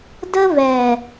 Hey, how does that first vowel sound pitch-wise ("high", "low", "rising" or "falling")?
high